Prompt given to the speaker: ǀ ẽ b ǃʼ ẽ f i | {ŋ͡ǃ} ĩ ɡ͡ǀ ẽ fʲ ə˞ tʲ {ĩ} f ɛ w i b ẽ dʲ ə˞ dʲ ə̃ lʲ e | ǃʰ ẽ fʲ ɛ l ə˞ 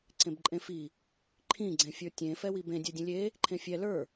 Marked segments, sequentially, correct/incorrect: incorrect: ǃʰ, incorrect: ẽ

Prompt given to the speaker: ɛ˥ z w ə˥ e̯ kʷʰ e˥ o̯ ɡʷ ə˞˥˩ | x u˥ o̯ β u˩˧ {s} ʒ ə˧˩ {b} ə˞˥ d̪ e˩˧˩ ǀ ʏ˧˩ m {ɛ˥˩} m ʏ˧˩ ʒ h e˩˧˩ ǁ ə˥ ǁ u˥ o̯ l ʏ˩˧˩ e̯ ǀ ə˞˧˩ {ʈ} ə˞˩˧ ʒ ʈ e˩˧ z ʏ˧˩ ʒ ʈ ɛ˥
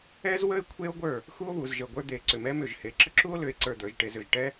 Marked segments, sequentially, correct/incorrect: incorrect: z, incorrect: ɡʷ, incorrect: ɛ˥, incorrect: d̪

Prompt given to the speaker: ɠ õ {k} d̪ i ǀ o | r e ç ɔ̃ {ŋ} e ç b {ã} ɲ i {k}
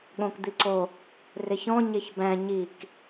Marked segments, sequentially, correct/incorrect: correct, incorrect: ɲ, incorrect: æ̃, correct

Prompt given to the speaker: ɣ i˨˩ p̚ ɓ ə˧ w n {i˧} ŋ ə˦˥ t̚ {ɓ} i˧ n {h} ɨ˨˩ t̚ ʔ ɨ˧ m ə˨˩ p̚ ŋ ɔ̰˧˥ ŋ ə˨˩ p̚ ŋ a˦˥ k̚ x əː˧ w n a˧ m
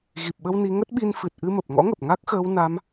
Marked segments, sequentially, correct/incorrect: correct, correct, incorrect: f

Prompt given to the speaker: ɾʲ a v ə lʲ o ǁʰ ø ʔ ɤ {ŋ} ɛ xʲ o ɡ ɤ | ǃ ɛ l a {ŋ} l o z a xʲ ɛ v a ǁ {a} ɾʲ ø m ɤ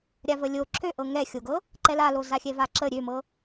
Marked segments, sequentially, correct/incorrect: correct, incorrect: none, incorrect: ə

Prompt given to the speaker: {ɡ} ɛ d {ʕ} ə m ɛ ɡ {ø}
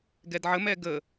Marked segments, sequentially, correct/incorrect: correct, correct, incorrect: ə

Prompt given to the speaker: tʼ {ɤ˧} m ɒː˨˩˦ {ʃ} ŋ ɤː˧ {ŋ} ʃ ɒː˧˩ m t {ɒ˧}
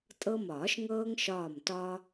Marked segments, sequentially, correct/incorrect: correct, correct, correct, correct

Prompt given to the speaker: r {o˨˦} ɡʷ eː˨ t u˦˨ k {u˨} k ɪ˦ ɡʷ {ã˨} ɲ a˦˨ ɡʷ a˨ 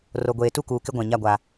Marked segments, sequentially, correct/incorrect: incorrect: o˨, incorrect: uː˨, correct

